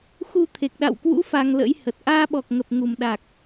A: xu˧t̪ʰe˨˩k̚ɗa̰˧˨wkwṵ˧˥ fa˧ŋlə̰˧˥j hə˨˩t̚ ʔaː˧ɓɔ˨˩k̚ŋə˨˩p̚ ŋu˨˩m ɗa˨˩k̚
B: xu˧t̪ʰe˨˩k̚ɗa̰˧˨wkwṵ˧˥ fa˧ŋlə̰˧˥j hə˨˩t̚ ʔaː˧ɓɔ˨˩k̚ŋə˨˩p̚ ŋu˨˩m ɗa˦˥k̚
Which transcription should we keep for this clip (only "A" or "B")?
A